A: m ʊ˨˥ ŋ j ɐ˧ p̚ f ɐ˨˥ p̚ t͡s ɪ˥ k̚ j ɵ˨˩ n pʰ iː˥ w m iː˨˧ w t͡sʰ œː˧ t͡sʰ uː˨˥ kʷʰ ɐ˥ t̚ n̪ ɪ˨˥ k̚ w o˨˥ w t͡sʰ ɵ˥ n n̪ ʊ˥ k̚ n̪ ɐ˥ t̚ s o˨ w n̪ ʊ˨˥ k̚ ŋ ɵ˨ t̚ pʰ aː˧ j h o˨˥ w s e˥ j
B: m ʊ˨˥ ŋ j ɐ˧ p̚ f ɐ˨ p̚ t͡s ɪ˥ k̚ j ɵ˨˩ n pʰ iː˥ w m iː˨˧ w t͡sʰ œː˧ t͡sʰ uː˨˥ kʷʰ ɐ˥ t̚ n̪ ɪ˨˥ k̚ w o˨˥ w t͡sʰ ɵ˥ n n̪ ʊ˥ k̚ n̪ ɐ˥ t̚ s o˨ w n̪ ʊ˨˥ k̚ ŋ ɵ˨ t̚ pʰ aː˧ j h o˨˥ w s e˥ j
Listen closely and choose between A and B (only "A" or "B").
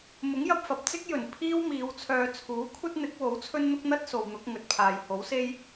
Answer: B